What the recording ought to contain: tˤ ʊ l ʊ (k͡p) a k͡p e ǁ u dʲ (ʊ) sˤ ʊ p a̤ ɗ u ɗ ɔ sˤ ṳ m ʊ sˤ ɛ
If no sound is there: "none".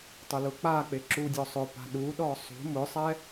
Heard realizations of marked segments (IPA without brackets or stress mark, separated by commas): k͡p, ɔ